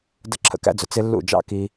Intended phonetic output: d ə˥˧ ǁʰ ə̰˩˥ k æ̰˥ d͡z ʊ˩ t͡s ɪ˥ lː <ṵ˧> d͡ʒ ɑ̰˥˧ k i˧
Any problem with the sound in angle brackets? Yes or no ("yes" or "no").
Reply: yes